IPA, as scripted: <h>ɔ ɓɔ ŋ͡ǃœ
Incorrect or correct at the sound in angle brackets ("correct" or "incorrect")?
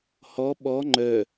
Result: correct